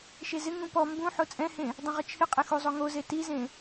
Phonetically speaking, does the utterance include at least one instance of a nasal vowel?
yes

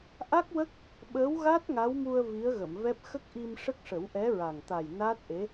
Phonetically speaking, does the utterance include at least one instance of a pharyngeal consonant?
no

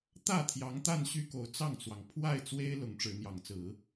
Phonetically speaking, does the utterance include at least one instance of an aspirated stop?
yes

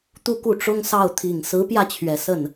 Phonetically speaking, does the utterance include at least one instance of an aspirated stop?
yes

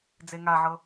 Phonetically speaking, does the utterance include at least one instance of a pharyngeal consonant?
yes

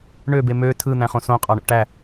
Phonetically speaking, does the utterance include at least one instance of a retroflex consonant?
yes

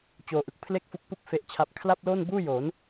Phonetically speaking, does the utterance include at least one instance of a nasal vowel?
no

